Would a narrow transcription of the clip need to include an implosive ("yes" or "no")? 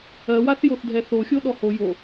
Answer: yes